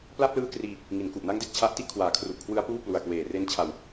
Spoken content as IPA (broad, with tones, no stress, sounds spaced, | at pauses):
p l a˥˩ p̚ l ɯː˦˥ k r iː˧ | ŋ i˩˦ n k u˨˩ ʔ n a˦˥ ŋ d e˨˩ k̚ t͡ɕʰ a˦˥ ʔ t i˥˩ ʔ kʰ w aː˨˩ kʰ r u˨˩ ʔ kʰ w ɯ˦˥ a̯ p uː˥˩ p l u˨˩ a̯ k w eː˨˩ r e˦˥ n t͡ɕʰ a˧ w